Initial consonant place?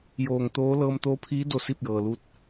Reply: palatal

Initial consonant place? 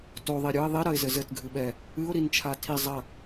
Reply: alveolar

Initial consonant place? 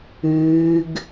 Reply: velar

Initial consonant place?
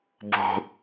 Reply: labial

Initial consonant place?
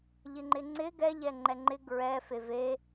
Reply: palatal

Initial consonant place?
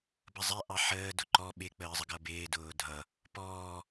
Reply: labial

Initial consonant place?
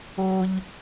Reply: palatal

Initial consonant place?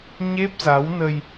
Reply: palatal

